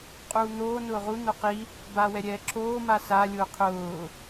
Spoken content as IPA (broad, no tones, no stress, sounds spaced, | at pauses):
qʼ uː n̪ oː n ʊː ʁ u n̪ o q i | b aː w ɛ ɾʲ ɛː ǁʰ oː m a s a lʲ ʊː qʰ ʊː